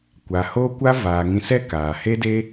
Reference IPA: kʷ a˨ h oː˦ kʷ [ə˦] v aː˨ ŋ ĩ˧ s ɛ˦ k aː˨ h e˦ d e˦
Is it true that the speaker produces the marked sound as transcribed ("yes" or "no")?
no